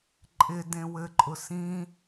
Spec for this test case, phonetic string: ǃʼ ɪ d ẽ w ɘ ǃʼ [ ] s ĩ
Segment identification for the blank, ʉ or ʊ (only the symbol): ʊ